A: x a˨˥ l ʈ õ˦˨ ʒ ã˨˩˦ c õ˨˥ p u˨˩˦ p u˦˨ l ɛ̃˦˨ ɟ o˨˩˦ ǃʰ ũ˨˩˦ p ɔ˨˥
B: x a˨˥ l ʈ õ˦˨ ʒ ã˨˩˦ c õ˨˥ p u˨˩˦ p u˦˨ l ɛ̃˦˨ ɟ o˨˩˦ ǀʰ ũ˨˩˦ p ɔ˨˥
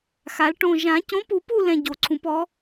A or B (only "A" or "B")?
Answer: B